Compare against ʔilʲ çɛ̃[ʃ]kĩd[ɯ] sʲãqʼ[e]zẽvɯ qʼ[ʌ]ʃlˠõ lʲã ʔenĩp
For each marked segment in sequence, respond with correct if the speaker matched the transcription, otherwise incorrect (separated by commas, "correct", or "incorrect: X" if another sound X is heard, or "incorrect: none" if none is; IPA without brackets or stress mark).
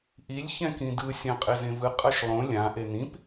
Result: incorrect: none, correct, correct, correct